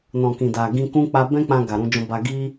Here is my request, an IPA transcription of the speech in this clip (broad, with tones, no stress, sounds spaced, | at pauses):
n ɔ̃˨ k ĩ˨ d a˨ ɡ ĩ˧ k ũ˦ k͡p a˧ b ɛ̃˦ k͡p ã˧ ɡ a˨ ɾ ũ˧ d͡ʒ ɔ̃˧ b a˧ ɡ i˦